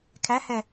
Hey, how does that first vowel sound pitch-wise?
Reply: rising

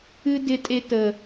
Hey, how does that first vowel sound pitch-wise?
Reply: high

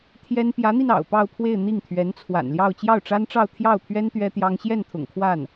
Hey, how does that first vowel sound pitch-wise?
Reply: high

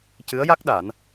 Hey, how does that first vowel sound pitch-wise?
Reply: rising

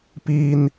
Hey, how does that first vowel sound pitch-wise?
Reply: high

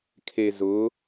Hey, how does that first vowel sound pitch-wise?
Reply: low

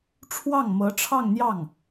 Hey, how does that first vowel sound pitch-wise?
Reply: falling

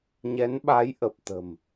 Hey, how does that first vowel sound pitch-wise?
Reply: rising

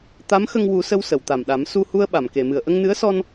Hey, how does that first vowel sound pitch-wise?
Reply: rising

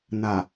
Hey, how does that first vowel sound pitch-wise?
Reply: low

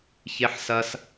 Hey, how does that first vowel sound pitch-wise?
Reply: high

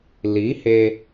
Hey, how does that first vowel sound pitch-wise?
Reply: rising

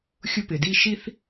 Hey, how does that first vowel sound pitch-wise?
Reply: high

